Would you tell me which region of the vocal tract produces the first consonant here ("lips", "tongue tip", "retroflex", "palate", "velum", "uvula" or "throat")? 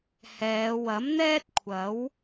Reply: throat